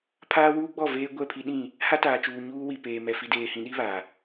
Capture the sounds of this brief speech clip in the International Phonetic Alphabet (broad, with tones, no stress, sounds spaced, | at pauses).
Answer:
pʰ aː˦ w uː˦ ɡ͡b ɔ˦˨ v eː˦ ɡʷ ɛ˦˨ pʰ i˦ ɗ ĩ˦˨ | h a˦ t aː˨ t͡ʃ uː˨ ɲ uː˦ w i˨ p eː˨ m ɛ˨ f i˨ d eː˨ h ĩ˨ ɗ i˦ β a˨